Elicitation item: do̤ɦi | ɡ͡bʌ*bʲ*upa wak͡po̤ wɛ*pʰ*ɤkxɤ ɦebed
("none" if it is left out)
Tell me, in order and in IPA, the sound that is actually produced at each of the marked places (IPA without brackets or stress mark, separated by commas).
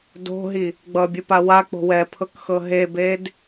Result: bʲ, pʰ